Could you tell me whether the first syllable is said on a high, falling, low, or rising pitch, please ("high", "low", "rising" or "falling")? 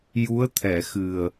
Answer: rising